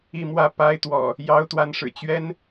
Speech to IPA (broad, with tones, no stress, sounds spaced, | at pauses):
i˥˨ m w ä˥˨ p a˦ ɪ̯ t̪ w ɔ̰˨˩ | j ɑ˦ ʊ̯ t̪ w a˨˦ n ʂ ɻ̩˨˩ t͡ɕ ɥ ɛ˦ n